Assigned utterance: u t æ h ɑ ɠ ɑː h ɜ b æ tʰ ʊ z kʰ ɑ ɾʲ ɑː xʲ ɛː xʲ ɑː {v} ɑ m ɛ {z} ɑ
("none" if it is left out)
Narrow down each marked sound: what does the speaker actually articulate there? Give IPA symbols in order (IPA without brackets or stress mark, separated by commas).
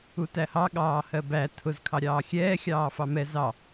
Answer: f, z